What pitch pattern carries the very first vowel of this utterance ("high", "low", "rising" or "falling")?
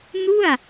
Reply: falling